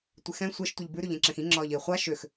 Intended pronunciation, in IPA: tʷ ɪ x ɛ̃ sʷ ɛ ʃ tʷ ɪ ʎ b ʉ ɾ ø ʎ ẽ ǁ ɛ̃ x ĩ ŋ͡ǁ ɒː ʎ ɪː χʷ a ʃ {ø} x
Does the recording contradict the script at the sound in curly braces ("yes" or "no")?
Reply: no